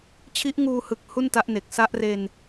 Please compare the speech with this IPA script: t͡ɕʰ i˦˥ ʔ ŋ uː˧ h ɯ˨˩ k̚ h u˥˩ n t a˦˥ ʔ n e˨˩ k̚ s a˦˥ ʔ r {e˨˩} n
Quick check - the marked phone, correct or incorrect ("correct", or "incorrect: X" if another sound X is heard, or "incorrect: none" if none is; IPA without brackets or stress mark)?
incorrect: e˧